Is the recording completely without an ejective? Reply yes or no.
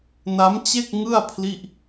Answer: yes